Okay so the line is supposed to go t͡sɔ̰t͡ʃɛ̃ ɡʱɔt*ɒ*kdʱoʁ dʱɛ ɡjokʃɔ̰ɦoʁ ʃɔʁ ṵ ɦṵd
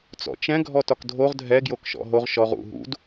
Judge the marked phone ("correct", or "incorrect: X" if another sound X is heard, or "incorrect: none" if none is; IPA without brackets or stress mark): correct